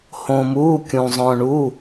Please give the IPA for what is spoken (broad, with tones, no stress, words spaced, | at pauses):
hõː˧muː˧˥˧kʲũ˧ zˤœ̃ː˧ɳu˧˥˧